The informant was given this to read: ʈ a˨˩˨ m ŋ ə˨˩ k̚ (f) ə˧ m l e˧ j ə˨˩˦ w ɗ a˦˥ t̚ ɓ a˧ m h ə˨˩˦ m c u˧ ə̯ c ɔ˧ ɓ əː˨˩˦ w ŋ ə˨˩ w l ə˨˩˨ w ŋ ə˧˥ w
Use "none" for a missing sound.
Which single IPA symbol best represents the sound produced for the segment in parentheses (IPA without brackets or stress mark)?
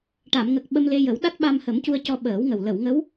ɓ